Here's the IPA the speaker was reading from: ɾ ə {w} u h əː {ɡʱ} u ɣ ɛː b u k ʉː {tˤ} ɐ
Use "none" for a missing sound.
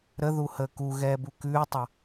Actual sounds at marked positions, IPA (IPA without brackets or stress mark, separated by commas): ð, k, tˤ